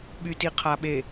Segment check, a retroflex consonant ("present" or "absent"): absent